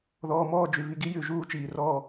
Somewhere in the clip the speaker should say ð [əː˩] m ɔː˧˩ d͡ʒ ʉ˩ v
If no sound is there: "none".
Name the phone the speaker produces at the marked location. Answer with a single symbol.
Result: ɔː˩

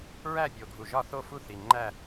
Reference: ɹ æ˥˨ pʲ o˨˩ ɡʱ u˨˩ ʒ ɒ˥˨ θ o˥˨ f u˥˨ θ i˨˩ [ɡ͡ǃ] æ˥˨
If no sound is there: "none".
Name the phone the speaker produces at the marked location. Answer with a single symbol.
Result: ŋ͡ǃ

